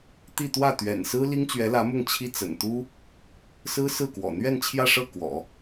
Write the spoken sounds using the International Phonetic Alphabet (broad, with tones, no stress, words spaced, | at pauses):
t̪i˥˧ t̪wä˥˩t̪ɥɛ̰˨˩n sɹ̩˥ li˥ŋt͡ɕɥɛ˧˥lä˧˥mʊ˥˩ŋ t͡ɕʰi˥ t͡sə̰˨˩nt̪u˥ | sɹ̩˥sɹ̩˥˩kwɔ̰˨˩ n̪ɥɛ˥˧nt͡ɕʰjä˥˧ʂɤ˥˩ kwɔ̰˨˩˦